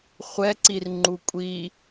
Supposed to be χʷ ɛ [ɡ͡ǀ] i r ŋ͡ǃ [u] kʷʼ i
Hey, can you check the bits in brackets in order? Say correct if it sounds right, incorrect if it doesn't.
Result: incorrect: ǀ, correct

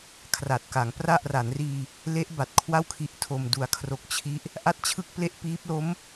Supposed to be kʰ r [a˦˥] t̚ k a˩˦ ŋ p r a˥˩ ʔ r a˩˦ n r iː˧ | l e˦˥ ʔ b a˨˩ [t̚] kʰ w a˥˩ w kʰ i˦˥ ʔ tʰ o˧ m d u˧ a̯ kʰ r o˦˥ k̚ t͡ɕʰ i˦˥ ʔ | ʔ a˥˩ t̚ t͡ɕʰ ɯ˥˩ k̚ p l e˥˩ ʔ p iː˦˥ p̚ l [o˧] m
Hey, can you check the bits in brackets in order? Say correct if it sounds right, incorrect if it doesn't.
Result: incorrect: a˨˩, correct, incorrect: o˦˥

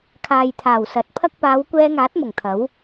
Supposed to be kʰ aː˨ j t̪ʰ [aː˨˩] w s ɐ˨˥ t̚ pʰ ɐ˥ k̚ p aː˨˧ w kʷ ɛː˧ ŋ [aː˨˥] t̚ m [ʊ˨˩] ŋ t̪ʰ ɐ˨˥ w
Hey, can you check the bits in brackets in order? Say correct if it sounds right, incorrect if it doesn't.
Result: correct, correct, correct

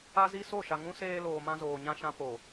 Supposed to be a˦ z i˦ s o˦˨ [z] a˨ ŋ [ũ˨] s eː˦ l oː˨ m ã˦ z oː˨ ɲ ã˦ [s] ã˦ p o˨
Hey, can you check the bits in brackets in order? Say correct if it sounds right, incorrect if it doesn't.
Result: incorrect: ʃ, incorrect: ũ˦, incorrect: ʃ

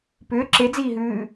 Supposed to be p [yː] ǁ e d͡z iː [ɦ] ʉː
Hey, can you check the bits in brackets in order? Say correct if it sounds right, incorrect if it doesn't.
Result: incorrect: ʏː, correct

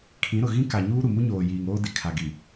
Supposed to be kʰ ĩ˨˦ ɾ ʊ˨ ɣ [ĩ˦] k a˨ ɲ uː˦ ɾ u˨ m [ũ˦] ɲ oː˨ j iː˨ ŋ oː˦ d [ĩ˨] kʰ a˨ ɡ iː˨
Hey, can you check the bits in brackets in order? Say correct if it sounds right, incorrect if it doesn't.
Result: correct, incorrect: u˦, incorrect: i˨

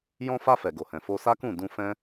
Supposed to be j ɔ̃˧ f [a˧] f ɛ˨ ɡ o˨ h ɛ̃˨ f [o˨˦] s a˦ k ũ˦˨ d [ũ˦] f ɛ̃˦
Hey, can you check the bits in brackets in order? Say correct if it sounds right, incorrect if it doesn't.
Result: correct, incorrect: o˧, incorrect: ũ˧

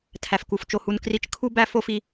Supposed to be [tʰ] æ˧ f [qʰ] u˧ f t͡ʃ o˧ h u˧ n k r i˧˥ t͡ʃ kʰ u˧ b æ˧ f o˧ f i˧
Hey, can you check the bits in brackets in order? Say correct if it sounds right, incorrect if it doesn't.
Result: correct, incorrect: k

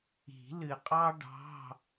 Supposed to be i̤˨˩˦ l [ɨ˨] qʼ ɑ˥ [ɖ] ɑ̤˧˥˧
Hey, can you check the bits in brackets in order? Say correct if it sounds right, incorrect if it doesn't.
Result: correct, correct

